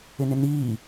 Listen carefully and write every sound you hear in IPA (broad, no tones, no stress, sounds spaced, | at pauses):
ɪ n ɪ n iː